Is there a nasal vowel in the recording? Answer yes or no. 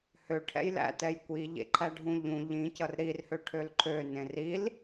yes